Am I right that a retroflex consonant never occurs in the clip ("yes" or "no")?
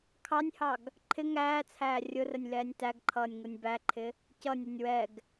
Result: yes